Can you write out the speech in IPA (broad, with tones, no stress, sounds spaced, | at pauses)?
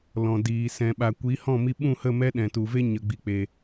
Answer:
l ɔ̃˨ d iː˨ s ɛ̃˨ ɓ a˨ kʷ i˨˦ h ɔ̃˦˨ m i˧ ɓ ũ˦˨ h ə˦˨ m ɛ˦ ɗ ɛ̃˨ t u˨ v e˦ ɲ ə˨ ɡ͡b i˨ k͡p e˨